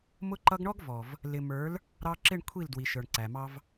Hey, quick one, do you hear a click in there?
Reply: yes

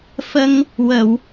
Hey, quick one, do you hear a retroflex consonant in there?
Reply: no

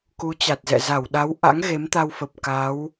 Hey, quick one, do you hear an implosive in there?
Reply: yes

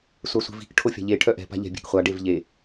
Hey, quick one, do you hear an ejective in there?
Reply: no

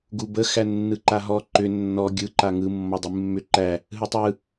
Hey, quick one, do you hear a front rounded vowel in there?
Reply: yes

